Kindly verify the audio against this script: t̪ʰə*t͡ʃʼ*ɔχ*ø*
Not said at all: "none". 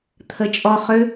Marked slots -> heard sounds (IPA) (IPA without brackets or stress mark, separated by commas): t͡ʃʼ, ø